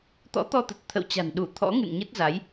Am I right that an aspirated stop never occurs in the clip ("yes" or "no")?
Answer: no